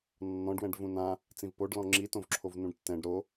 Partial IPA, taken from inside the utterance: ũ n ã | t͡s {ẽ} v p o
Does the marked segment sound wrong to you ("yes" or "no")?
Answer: yes